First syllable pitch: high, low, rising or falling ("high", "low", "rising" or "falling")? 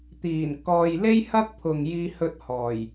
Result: low